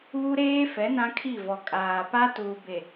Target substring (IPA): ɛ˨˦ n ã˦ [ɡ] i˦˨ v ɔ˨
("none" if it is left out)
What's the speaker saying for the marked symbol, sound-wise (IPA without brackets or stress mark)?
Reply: kʰ